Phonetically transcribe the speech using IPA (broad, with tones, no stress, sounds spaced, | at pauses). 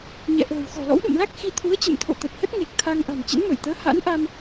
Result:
ɲ ɛ̰˧˨ ʔ ə̤ː˨˩ w x ɔ̤˨˩ l ɔ̰˧˥ w ɗ ṵ˧˨ m l a˦˥ k̚ x i˧ t̪ʰ u˨˦ ə̯ t͡ɕ ə̰˧˨ m t̪ʰ o̰˧˨ t̪ ə˨˩ t̚ h ə˦˥ t̚ ŋ e˨˩ k̚ t̪ʰ a˧ ŋ ʔ a̤˨˩ n t͡ɕ ə̰˧˥ n m ə˧˩ j t̪ əː˨˦ h a̰˧˥ n ʔ a˧ m